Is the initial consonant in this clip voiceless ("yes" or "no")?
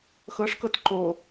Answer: yes